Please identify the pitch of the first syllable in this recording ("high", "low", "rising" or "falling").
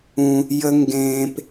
low